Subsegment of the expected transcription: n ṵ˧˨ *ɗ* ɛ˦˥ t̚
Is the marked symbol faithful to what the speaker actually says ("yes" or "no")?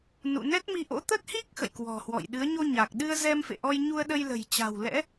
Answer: no